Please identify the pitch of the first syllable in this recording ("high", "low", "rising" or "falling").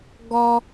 high